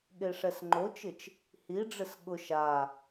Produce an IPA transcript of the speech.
ɠ e ʂ ɛ s ŋ͡ǃ o t͡ʃ ɪ t͡ʃ | h i ɖ͡ʐ ɪ s ɠ ʊ ʃ a

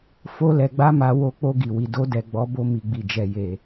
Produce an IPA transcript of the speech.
f o˦ l ɛ˧ ɡ͡b a˦ m a˧ w o˧ k͡p o˧ ɡ i˨ w i˨ d o˧ d ɛ˨ ɡ͡b ɔ˨˦ b o˧ m i˨ ɡ͡b i˨ d͡ʒ ɛ˨ j e˨

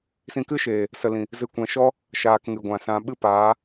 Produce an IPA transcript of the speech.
s ĩ˧ k ɨ˦ ʃ eː˨ | s ə˨ l ĩ˨ | z ɨ˨ kʷ ɛ̃˨ ʃ ɔ˧ | ʃ aː˧ k ŋ ɨ˨ ɡʷ ã˨ s ã˧ ɓ ɨ˦ p aː˨˦

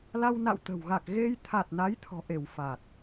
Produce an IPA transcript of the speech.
l a˧ w n a̰˧˨ w t̪ ə̤˨˩ w ɣ a˨˩ k̚ ɣ e˧ j t̪ʰ a˨˩ t̚ n a˨˦ j t̪ʰ ɔ̤˨˩ ʔ e˧˩ w f a˨˩ t̚

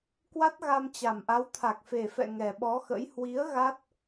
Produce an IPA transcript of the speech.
k w a˦˥ t̚ ɣ a˧ m t͡ɕ a˨˩ m ʔ a˨˦ w t̪ʰ a˨˩ k̚ f e˨˩ f ɛ̰˧˨ ŋ ɛ˨˩ ɓ ɔ˨˦ x ə̰˧˥ j h w i˨˦ ə̯ ɣ a˦˥ t̚

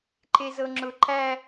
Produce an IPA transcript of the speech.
ǃ e z ɤ ŋ͡ǁ ʊ ǃ æ

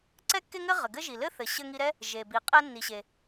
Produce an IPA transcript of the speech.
ǀ ɛ˥ kː e˥ ŋ ɘ˥ ʁ ɘ˩ ɡ ɘ˥ ʒ i˩ l ɘ˥ θ ɘ˩ ɕ ɘ˧ ŋ i˧ ɾ ɛ˥ | ʒ e˩ b i˩ qʼ ɛ˧ nː i˩ ɕ e˩

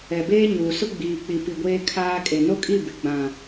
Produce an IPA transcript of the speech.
ɛ˨ b eː˦ ɲ uː˨ s ʊ˦ ɡ͡b iː˨ k͡p i˨ p i˨ ɡʷ eː˦ kʰ aː˦ kʼ e˨ n o˦ kʼ i˦˨ b ɪ˨ ɡ͡b ã˨

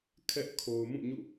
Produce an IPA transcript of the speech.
kʰ ɛ˦ ʔ kʰ o˨ ʊ̯ m ũ˦˨ ɲ ṵ˦˨

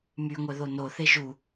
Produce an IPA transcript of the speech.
m y ŋʷ œ ð o n o θ e ʒ u

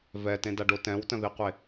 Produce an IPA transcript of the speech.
v ɛ t ẽ d a ɖ o t ɛ̃ w t ə̃ ð i qʷ e

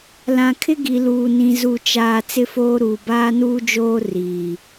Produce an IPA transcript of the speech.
l ã˨ kʰ ɪ˦ ɡ i˨ l uː˨ n ĩ˨ z u˨ t͡ʃ aː˨ t͡s ɪ˦ f oː˦ ɾ uː˨ b aː˦ n uː˦ d͡ʒ oː˦ r iː˨

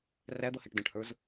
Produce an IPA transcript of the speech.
r æ d̪ ʌ h ɛ ʈ d ə̃ ʈ h ə˞ z

